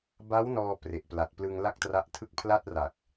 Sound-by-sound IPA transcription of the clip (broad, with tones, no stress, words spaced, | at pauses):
ba˦˥w nɔː˧ pre˨˩ʔpla˨˩t̚ plɯ˧ŋ la˥˩k̚tra˦˥ʔtʰɯ˥˩k̚ pʰla˥˩t̚ra˨˩k̚